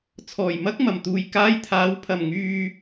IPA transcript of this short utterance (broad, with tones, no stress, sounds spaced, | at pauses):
t͡sʰ ɔː˨˩ j m ɐ˥ k̚ m ɐ˨˩ m t̪ uː˨ j k aː˧ j t̪ʰ aː˨˥ w pʰ ɐ˨˩ m ŋ yː˨